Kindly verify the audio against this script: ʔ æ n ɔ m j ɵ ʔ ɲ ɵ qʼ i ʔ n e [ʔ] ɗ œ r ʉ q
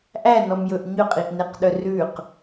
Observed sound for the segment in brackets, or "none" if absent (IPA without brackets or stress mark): q